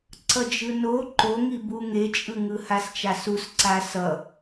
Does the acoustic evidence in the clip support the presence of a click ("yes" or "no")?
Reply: yes